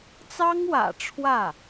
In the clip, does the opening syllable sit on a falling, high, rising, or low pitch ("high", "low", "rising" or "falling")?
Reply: high